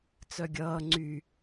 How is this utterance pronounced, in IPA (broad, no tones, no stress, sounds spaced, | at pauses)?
t͡s œ ɡʲ ʌː ŋ͡ǀ y